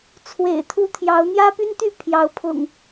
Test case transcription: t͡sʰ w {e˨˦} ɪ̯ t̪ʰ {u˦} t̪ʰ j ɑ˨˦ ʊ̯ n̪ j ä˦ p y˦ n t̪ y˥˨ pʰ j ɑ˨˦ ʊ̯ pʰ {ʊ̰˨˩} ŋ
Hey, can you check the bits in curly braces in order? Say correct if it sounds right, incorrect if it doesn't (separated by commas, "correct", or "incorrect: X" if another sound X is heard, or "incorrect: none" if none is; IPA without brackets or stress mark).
incorrect: ḛ˨˩, correct, correct